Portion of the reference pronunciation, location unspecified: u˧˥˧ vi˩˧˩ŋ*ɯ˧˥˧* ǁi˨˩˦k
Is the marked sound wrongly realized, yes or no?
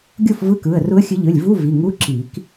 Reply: yes